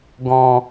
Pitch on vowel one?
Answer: low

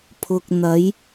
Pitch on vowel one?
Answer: low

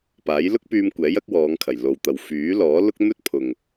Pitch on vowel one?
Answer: rising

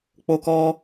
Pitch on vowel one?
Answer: high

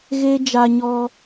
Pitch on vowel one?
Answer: high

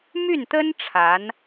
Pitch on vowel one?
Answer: falling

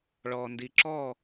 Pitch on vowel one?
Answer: low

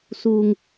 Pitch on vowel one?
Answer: low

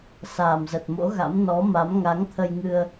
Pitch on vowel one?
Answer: low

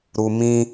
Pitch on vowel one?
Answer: low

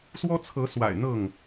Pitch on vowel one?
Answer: high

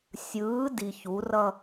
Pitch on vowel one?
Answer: rising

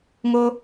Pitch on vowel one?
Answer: high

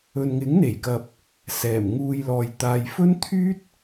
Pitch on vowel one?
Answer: low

